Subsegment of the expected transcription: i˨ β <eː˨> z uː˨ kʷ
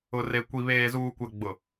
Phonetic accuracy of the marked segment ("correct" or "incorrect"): correct